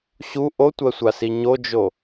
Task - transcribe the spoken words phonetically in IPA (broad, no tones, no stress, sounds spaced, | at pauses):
ɕ u ʔ o tʷ ɜ sʷ a s i ɲ o d͡ʒ o